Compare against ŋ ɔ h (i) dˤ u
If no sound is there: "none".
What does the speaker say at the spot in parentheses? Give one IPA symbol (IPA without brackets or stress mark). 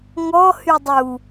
y